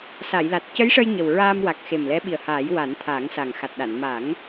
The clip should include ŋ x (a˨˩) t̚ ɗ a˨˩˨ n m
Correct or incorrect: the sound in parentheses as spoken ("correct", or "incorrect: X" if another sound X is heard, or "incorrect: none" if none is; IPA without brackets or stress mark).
correct